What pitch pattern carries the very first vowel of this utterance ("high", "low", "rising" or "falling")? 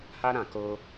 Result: high